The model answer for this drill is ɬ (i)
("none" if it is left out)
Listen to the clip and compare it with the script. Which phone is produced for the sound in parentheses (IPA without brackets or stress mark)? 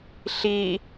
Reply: i